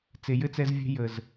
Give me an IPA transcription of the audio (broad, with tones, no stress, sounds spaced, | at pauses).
t͡s e˨ j ɘ˦ t͡s ɛ˧ z vʲ ɛ̤˧ j ə˨ z